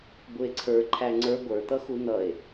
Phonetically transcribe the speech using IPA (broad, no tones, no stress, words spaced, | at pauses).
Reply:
bʊe̯ǀʰə˞ ǃʰæŋ͡ǀə˞ ɡʷə˞t̪ʌxu n̪ʌe̯